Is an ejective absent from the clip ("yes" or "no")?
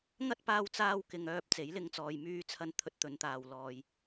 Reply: yes